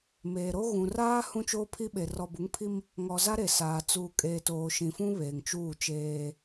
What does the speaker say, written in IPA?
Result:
m eː˨ ɾ o˦ ɣ ũ˨ r aː˦ h ũ˦ t͡ʃ oː˦ pʰ i˦ ɓ e˨ r ɔ˨ b u˨˦ ŋ pʰ i˦ m | ŋ ɔ˨ z a˦ ɾ e˨ s aː˨ t͡s uː˨ kʼ eː˨ t oː˨ ʃ ĩ˨ f ũ˦ β eː˨ ŋ t͡ʃ uː˦˨ t͡ʃ eː˦

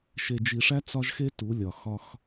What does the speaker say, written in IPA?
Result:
ʃ e˨ d͡ʒ i˨ ʂ æ˦ t͡s ɒ˦ ʒ x e˦ t u˨˦ lʲ ɒ˨ x ɒ˦ x

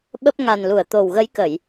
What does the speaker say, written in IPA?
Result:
ɓ ə˦˥ p̚ ŋ a˨˩ n l u˧˩ ə̯ t̪ o˨˩ w ɣ ə˨˦ j k ə˧˩˨ j

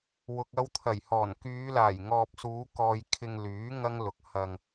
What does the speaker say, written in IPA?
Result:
w ʊ˨ k̚ ɐ˧ w t̪ʰ ɐ˨˩ j h ɔː˨˩ n k yː˨˧ l aː˨˩ j ŋ ɔː˨ p̚ s uː˨˧ k ɔː˨ j kʰ ɪ˧ ŋ l yː˨˥ ŋ ɐ˥ ŋ l ʊ˨ k̚ h ɐ˧ ŋ

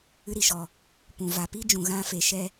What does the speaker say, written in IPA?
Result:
ɨ˧ ɾ i˧ ʃ ɔ˨ | p ũ˨ v a˨ p i˦ d͡ʒ ũ˨ ɣ ã˦ f e˧ ʃ ɛ˧

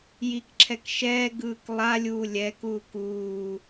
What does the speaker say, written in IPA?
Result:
j i k ǁʰ ɛ k ʃ ɛː ɡ ɯː k lˠ a lʲ uː lʲ ɛ k uː k uː

